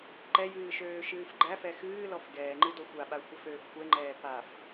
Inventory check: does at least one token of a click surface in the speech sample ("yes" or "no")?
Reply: yes